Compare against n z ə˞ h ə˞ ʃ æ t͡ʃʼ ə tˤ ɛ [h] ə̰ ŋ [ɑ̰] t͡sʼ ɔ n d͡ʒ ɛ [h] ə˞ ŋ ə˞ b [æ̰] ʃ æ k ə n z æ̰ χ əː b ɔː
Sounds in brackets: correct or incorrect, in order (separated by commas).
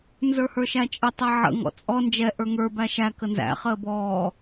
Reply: incorrect, incorrect, incorrect, incorrect